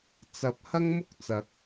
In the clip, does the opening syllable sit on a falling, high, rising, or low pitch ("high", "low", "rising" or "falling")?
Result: rising